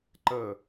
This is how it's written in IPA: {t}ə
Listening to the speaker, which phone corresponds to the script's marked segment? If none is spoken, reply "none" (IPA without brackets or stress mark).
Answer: ǃ